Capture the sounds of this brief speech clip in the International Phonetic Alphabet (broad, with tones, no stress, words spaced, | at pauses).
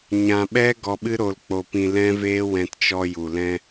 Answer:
ɲã˧ ɓɛ˦ ɡɔ˧ɓɨ˦ɾo˧l k͡po˧pĩ˧lɛ̃˦veː˦ wɛ̃˧tt͡ʃɔ˧ ju˨ lɛ̃˧